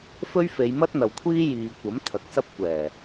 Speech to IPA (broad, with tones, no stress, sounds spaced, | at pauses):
f ɵ˥ ɥ f e˨˧ j m ɐ˥ t̚ n̪ ɐ˨ w kʷʰ iː˥ j iː˨ kʷ ɐ˨˥ m t̪ʰ ɐ˨˥ k̚ s ɐ˥ p̚ kʷ ɛː˨˩